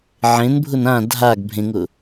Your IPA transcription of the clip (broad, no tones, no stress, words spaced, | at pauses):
ʕẽnbʱʊn ã dʱaɡ bʱẽŋʊ